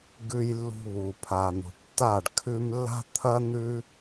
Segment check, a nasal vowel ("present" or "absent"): absent